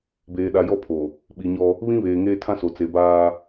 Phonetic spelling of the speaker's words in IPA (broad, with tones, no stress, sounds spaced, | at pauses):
b eː˨ ɗ a˨ j ɔ˦ pʰ o˨ | ɓ i˨ ɲ ɔ˦ | β ĩ˦ β eː˨ ŋ eː˦ tʰ ã˦ s o˨ t͡s e˨ b aː˦